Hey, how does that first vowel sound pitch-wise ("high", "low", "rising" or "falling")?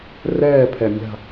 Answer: falling